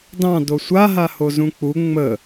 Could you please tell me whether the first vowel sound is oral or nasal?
nasal